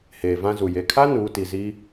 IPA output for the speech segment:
h eː˨ v ã˦ z u˨ j e˨ kʰ a˦ n uː˨˦ t i˨ z i˦

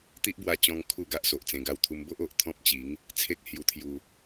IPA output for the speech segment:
t̪ i˦ ʔ b w a˧ t͡ɕ ɔ̃˧ ŋ kʰ u˥˧ ɡ a˦ ʔ s o˨ ʔ t͡s ẽ˧ ɡ a˧ w t̪ʰ u˧ m b o˦ ʔ o˨ ʔ t̪ʰ ɔ̃˦ p̚ t͡ɕ i˨˦ ŋ | t͡sʰ e˦ k̚ h j u˧ t̪ʰ j u˧

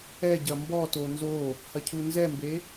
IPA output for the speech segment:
ɛ ɟ ɐ m b ɔ t o n z o | h ɐ cʰ u n z ɛ m b e

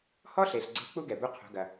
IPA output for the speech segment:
h ɔ˥ ɬ e˩ ɬ ɡ͡ǀ e̤˧˥ k͡p u˥ ɡ ɛ˩ b u˧˥ qʰ o̤˩˧ ɡ ɐ˩

